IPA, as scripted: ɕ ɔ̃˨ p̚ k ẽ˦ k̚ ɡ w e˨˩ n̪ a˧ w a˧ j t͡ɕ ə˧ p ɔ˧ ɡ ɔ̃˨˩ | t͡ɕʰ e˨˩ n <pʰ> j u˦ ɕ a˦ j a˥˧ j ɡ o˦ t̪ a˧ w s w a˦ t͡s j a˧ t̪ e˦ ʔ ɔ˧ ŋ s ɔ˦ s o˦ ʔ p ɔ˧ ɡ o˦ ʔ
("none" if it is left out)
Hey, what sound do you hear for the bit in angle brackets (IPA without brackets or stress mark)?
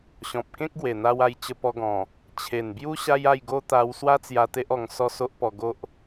b